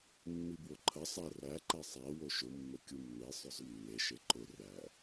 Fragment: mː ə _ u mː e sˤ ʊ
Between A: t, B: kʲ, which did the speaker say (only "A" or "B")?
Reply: B